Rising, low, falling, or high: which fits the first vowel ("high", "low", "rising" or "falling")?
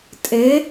rising